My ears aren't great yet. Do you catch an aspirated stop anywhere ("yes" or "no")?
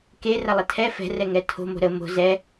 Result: yes